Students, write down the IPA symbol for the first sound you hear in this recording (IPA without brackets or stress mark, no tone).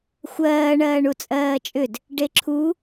xʷ